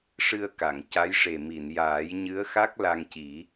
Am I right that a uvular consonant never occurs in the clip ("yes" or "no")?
yes